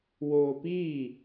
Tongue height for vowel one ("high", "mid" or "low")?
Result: mid